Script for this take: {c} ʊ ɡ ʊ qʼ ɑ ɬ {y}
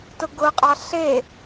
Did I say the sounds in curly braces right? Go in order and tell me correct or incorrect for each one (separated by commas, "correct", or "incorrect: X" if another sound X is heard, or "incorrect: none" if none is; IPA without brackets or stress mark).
incorrect: t, incorrect: e